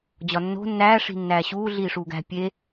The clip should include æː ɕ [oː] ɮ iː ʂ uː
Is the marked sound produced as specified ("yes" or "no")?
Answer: no